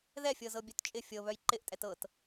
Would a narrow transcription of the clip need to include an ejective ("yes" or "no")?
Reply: yes